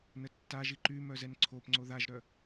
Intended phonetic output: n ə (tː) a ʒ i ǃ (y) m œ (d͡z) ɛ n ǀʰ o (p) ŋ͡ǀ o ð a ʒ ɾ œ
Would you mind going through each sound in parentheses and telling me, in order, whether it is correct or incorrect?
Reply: correct, correct, incorrect: z, correct

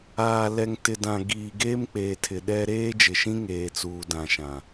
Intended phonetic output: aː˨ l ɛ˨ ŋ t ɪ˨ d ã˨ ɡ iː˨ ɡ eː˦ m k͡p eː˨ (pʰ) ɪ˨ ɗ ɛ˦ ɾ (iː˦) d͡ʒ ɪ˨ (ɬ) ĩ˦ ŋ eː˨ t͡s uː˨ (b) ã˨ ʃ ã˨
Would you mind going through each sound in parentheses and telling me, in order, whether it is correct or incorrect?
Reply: incorrect: tʰ, incorrect: eː˦, incorrect: ʃ, incorrect: d

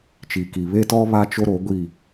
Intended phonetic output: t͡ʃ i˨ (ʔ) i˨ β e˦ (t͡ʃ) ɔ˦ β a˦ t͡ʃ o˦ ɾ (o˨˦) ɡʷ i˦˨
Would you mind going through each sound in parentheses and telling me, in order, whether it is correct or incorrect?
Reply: incorrect: k, incorrect: t, correct

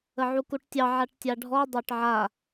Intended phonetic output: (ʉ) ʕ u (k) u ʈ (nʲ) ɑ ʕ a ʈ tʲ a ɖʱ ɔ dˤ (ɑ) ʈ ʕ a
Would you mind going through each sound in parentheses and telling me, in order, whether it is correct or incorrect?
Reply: incorrect: ə, correct, incorrect: tʲ, correct

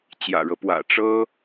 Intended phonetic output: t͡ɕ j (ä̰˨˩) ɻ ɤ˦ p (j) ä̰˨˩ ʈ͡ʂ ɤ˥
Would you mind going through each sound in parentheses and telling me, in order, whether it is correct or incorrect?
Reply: correct, incorrect: w

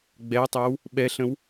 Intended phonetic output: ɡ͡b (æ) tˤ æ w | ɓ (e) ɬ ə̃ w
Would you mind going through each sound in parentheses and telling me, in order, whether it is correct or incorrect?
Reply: incorrect: ɛ, incorrect: ɛ

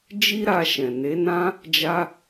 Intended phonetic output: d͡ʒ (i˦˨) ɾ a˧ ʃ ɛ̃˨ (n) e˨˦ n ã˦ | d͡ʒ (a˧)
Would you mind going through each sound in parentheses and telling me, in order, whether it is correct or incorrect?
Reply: incorrect: i˦, correct, correct

